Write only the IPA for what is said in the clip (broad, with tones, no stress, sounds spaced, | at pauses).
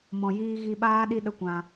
m ɔ̃˨ j iː˧ ɣ i˧ ɓ aː˦ ɗ i˦ ɗ ə˦ kʷ ã˧